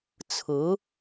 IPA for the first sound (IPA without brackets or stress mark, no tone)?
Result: t͡sʰ